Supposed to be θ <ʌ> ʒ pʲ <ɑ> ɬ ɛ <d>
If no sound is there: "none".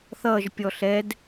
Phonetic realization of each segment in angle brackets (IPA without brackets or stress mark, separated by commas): ʌ, ɔ, d